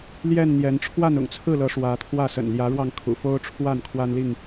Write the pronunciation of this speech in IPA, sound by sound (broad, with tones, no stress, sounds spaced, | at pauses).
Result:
l j ɛ˥˨ n n̪ j ɛ˨˦ n ʈ͡ʂʰ w a˥˨ n ʊ̰˨˩ ŋ t͡sʰ ɹ̩˥˨ l ɤ˨˦ ʂ w ä˨˦ t̪ʰ w ä˥˨ s ə̰˨˩ n l j ä˨˦ ɻ w ɑ˧ ŋ kʰ ṵ˨˩ f o˦ ʊ̯ ʈ͡ʂʰ w a˥˨ n kʰ w a˦ n l i˥˨ ŋ